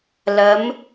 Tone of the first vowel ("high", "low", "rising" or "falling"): rising